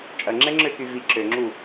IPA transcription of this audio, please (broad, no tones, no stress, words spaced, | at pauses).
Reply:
t͡ʃʼɐŋ͡ǁɛŋ͡ǁøky vi ǁøŋ͡ǁu